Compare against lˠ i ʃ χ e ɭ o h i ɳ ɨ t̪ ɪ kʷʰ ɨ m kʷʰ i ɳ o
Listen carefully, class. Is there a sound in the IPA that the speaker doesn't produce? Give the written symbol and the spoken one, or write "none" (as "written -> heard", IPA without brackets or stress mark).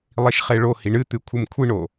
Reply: ɪ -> ɨ